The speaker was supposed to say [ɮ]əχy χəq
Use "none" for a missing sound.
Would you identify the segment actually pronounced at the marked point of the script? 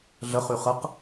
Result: ɮ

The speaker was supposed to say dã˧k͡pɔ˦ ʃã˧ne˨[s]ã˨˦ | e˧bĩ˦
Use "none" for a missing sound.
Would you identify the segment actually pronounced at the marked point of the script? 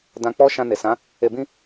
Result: s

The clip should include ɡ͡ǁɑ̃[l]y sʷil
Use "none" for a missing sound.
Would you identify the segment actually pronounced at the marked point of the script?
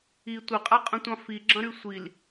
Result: ɾ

